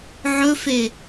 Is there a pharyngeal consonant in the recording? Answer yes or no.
yes